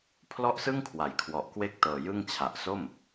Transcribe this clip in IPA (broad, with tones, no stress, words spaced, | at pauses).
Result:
pʰlɔ˥˩ʔsɯ˥˩ŋkʰwa˩˦j kʰwɔ˨˩ʔkwe˥˩k̚ tɤː˨˩jɯ˥˩ŋ t͡ɕʰa˨˩ʔso˥˩m